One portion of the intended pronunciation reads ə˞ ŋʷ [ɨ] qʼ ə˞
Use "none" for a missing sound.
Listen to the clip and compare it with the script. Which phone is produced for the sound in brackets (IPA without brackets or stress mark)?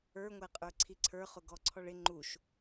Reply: ɛ